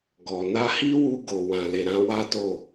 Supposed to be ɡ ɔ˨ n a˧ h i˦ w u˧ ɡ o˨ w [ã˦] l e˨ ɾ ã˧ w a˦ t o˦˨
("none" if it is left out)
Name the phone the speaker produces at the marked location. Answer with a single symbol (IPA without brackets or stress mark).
ã˨